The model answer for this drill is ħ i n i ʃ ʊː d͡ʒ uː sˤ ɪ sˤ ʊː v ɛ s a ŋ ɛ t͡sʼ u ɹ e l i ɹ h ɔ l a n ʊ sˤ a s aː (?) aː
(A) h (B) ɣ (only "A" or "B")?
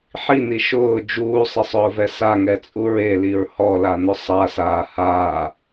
A